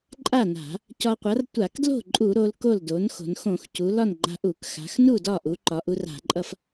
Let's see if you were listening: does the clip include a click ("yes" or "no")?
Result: yes